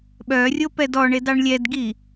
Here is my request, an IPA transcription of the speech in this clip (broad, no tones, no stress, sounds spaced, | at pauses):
ɓ œ rʲ o p ɛ d ɔ ɳ e d ɑ ɳ lʲ ɛ d ɡ i